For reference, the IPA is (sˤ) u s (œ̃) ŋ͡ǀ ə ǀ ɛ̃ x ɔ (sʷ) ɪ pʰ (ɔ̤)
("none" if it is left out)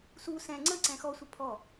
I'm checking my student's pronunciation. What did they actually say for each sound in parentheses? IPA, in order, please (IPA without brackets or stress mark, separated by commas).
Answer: s, ɛ̃, sʷ, ɔ